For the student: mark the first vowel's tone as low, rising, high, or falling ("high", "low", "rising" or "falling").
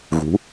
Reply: rising